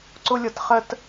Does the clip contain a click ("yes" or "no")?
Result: yes